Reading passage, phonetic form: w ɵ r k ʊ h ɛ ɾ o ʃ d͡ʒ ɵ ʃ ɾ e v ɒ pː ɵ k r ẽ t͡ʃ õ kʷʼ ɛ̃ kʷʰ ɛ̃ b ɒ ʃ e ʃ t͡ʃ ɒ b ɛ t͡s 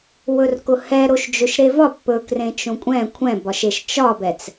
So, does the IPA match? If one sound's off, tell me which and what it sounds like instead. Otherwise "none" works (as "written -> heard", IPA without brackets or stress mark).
none